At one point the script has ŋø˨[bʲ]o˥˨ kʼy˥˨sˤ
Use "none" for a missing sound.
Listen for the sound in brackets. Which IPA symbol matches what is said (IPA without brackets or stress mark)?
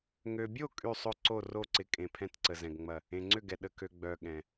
bʲ